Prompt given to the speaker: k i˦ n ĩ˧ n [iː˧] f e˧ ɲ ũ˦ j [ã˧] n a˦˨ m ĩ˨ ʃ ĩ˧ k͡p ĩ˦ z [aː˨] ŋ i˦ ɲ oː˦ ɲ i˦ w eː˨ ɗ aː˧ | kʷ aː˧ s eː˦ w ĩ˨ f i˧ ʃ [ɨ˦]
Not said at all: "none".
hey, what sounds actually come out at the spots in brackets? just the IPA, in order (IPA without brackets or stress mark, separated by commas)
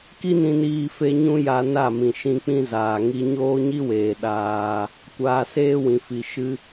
iː˧, a˧, aː˨, ɨ˦